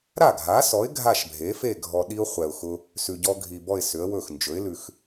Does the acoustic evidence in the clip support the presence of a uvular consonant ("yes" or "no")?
yes